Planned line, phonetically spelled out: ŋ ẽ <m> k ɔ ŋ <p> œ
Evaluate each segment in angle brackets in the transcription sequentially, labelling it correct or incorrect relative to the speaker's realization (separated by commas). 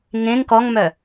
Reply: incorrect, incorrect